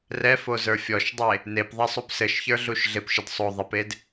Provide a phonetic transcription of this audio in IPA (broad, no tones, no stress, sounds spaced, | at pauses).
r ɛ f o z ə˞ fʲ ɔ ʃ dˤ e | n e p ðˤ ɛ sˤ u p s ɘ ʃ ç ə˞ ɮ u ʃ ɮ ɪ p ʃ ɪ d sˤ o ðˤ ɪ p e d